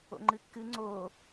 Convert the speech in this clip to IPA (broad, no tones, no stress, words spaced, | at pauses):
o̰ŋ͡ǃɨkːɨ ŋ͡ǀo